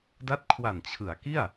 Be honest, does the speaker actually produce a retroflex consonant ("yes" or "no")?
no